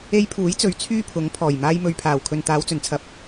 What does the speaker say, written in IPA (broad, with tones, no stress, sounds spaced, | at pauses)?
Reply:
e˧ j pʰ uː˨˥ j t͡s ɵ˨˧ ɥ t͡sʰ yː˥ pʰ ʊ˨˥ ŋ pʰ ɔː˨˩ j m aː˧ j m ɵ˨ ɥ pʰ aː˨˩ w kʰ ɵ˨ n t̪ aː˨˧ w t͡s ɵ˨˩ n t͡sʰ ɐ˨ p̚